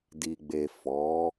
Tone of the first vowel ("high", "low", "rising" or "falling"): low